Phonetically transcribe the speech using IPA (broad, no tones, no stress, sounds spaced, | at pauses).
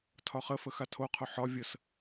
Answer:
tʰ ɒ χ ə f ə x a tʰ o qʰ o ħ ɒ vʲ ə s